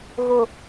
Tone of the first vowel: low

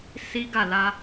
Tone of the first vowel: high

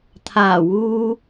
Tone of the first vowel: low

